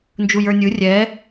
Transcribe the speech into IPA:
n d͡ʒ u j ə˞ nʲ ɯ rʲ ɛ

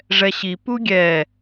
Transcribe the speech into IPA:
ʐ ɛ ɕ i p u ɡʲ ɛ

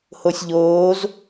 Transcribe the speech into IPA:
h o sʲ ʎ oː z

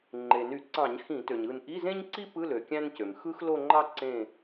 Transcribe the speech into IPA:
ŋ͡ǃ e˩ n y˧˩˧ ǀ ɑ̃˧˩˧ ɲ x ĩ˧˩˧ t ø˩ ɲ ɯ˧˩ n ʔ i˧˥˧ z ẽ˥ ɲ ǀ i˥ p ɯ˧˥˧ l ø˩ kʲ æ̃˥ n c ø˩ m x ɯ˥ x l o˥˧ ŋ͡ǃ ɑ˥ ǀ ẽ˧˩

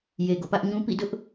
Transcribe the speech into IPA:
j e˨ ɡ o̰˦˨ p ä˦ ʔ ɲ ũ˦ p ḭ˦˨ d ʊ˦ ʔ

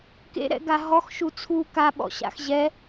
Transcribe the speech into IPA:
k ḛ ɾ ɛ̰ ɡ a ɦ ɔ x ʃ u t͡sʰ u k a ɓ ɔ̰ ɕ a̰ x ʑ ɛ

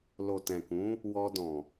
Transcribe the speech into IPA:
l o˨ t ɛ̃˨ k ũ˨˦ | w ɔ˧ d ɔ̃˨

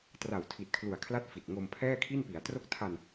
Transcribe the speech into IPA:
t r a˨˩ w tʰ i˨˩ t̚ kʰ l u˨˩ a̯ kʰ l a˦˥ t̚ f i˨˩ t̚ ŋ o˧ m pʰ ɛː˥˩ kʰ i˥˩ n p i˩˦ a̯ t r o˦˥ k̚ tʰ a˧ n

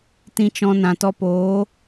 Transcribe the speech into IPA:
t ĩ˧ t͡ʃ ɔ̃˧ n ã˨ t ɔ˧ p oː˨˦

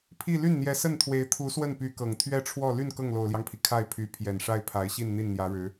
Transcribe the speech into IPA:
pʰ i˥˧ l y˥˩ n n̪ j ɛ˧˥ s ə˥˩ n t̪ʰ w e˧˥ ɪ̯ t̪ʰ u˧˥ s w ə˥˩ n p y˧˥ k ɤ˨˩ ŋ t̪ʰ ɥ ɛ˥˧ ʈ͡ʂʰ w ɔ˥˧ l y˥˧ n k ɤ˥˩ ŋ l o˨˩ ʊ̯ l j ɑ˦ ŋ pʰ i˩ kʰ a˥˩ ɪ̯ pʰ y˧˥ pʰ j ɛ˨˩ n ʂ a˥˩ ɪ̯ pʰ a˧˥ ɪ̯ ɕ i˥˧ n n̪ i˥˩ n n̪ j ä˧˥ ɻ ɻ̩˧˥

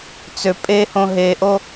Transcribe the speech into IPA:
t͡s ø pʼ e h õ ɦ e ʔ o

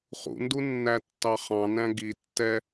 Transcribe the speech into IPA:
χ ṵ n d u nː æ tː ɑ χ ɑ̃ n æ̃ ɡ i tː ɛ

